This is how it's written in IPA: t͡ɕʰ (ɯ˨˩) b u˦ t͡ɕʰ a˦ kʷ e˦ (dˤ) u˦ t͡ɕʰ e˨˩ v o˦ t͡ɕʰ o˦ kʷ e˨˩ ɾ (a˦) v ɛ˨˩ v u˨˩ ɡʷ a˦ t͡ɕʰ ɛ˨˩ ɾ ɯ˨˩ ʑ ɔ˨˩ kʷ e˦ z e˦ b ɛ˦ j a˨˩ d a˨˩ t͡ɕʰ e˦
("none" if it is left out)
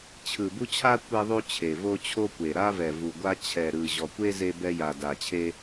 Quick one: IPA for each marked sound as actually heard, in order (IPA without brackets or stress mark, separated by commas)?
ɯ˨˩, ðˤ, a˦